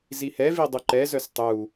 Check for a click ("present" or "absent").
present